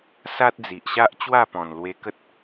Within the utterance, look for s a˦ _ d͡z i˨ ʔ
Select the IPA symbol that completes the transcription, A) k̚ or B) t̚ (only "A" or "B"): B